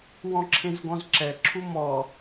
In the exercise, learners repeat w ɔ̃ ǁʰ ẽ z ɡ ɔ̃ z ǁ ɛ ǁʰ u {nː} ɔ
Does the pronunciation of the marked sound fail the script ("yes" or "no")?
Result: yes